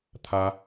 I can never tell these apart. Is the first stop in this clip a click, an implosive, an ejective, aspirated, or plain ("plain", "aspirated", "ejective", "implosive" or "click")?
aspirated